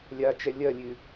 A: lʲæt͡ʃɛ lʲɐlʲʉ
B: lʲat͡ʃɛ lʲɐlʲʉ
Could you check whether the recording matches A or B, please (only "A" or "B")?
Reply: B